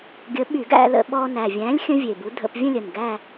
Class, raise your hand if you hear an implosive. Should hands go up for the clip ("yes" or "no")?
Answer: yes